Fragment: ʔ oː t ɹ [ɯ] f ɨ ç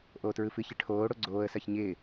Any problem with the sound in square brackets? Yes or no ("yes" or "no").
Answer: no